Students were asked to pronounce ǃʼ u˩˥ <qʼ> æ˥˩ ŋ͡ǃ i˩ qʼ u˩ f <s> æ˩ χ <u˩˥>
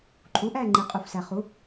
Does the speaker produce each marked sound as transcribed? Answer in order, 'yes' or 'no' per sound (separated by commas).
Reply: no, yes, yes